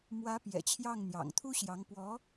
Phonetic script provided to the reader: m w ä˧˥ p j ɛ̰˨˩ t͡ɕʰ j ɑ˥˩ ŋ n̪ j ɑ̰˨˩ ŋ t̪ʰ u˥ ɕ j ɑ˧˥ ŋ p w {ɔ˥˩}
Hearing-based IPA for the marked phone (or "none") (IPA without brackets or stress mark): ɔ˧˥